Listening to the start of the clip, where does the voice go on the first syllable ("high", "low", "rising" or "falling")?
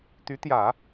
rising